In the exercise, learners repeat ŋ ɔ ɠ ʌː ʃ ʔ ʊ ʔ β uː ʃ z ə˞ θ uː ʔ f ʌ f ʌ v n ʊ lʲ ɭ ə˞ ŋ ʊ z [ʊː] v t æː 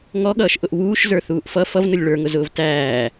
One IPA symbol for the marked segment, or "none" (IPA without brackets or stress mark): ʊː